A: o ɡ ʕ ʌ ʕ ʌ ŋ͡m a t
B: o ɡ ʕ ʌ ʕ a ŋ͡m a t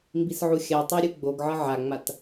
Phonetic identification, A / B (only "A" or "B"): B